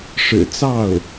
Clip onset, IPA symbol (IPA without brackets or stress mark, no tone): ʂ